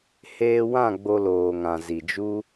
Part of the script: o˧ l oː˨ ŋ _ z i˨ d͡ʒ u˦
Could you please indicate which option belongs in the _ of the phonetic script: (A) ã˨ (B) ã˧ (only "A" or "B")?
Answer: A